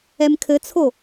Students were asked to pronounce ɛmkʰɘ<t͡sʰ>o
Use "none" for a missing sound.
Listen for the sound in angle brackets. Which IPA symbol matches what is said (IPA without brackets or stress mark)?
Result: t͡sʰ